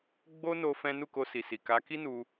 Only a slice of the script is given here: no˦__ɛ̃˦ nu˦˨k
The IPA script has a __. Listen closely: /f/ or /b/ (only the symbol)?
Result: f